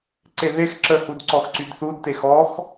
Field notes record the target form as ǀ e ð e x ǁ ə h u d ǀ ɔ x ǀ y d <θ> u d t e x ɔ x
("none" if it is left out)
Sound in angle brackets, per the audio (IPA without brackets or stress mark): θ